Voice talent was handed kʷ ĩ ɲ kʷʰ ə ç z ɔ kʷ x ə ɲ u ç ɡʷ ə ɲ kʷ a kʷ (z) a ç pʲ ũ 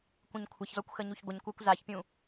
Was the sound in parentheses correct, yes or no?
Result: yes